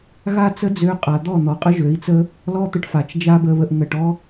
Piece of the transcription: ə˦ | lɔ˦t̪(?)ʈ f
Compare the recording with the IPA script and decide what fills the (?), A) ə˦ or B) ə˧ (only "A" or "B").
B